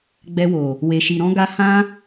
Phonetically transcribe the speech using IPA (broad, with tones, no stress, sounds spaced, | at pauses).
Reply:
ɡ͡b ɛ˧ w o˨ | w e˧ ʃ i˧ ɾ ɔ̃˦ ɡ a˦ h ã˦